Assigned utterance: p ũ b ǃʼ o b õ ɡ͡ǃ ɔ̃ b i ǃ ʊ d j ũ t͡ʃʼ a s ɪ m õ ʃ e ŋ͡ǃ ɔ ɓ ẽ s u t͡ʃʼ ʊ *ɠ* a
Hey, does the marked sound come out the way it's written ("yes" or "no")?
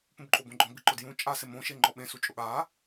yes